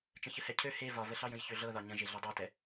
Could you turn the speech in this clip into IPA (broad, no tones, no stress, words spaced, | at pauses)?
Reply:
t͡ʃə̃çəhɛcʰø he vɒvəɬɑjə̃j çøɮɤðɒ ɲə̃ʒeɮi dˤɑtɛ